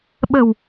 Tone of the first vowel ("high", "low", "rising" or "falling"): low